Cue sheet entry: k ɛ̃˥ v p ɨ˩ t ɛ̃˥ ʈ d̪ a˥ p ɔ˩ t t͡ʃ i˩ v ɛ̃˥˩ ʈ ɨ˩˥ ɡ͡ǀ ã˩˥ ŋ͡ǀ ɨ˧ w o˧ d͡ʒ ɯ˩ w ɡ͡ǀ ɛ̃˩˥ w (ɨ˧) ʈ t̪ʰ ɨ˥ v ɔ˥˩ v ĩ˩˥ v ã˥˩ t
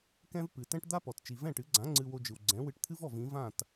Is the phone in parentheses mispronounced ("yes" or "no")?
no